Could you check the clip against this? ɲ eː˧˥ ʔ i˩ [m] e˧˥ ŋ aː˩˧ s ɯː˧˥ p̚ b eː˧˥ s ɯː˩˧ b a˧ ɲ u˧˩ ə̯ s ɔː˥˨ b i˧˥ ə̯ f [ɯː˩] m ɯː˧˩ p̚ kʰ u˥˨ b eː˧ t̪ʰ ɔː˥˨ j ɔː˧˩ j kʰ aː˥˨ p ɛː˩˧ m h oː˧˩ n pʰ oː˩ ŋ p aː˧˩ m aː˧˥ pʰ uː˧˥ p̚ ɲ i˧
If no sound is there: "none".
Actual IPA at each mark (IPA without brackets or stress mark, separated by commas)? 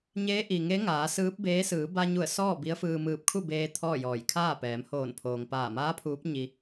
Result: ŋ, ɯː˧